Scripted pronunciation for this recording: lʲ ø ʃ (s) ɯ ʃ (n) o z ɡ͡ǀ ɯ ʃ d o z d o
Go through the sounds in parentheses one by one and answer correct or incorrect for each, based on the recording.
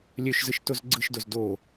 incorrect: z, incorrect: t

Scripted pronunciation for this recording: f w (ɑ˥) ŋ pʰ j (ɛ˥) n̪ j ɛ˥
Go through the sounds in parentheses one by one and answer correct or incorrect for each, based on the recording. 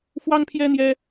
correct, correct

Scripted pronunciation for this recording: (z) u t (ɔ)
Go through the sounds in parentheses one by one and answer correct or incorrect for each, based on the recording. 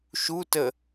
incorrect: ʃ, incorrect: ə

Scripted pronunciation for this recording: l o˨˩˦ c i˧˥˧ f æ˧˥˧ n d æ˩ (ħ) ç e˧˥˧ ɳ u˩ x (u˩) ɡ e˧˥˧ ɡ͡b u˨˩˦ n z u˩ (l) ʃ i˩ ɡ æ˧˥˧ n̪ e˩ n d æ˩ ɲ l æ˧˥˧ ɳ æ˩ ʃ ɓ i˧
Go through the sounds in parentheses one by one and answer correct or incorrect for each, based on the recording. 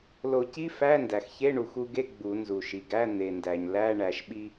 incorrect: x, incorrect: u˧, incorrect: none

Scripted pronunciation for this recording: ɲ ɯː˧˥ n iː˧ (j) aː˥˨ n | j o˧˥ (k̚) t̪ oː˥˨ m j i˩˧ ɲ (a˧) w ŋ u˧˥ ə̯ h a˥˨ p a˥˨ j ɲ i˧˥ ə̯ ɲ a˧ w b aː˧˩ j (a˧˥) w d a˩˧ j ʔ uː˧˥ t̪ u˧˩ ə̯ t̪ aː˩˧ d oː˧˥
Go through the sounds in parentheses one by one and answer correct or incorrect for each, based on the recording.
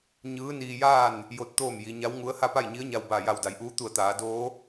correct, incorrect: t̚, incorrect: a˧˥, incorrect: a˧˩

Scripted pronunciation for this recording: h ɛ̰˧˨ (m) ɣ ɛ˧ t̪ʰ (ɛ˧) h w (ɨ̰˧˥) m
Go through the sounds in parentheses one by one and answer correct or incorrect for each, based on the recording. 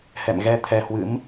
correct, correct, correct

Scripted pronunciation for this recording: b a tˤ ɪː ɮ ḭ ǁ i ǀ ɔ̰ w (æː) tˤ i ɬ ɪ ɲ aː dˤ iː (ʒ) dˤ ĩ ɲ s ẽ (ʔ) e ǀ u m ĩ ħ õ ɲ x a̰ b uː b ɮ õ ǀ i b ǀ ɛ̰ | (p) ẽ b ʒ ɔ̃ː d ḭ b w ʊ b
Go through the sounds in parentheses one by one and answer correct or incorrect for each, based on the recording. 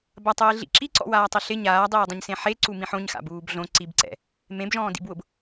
incorrect: aː, incorrect: none, incorrect: ħ, incorrect: m

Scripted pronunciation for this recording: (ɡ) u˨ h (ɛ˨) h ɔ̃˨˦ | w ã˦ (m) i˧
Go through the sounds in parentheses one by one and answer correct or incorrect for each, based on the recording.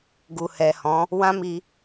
correct, correct, correct

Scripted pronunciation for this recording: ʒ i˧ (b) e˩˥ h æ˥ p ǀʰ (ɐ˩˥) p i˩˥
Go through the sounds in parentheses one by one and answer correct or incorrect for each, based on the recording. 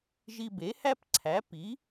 correct, incorrect: æ˩˥

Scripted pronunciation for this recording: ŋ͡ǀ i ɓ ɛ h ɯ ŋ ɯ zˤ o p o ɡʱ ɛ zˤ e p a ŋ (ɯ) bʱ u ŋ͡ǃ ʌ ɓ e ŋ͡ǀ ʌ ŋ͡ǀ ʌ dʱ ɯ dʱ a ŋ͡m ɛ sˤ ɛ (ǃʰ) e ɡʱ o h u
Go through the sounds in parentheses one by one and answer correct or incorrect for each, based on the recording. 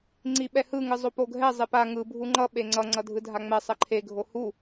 correct, correct

